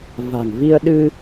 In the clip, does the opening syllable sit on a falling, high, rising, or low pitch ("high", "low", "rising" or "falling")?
low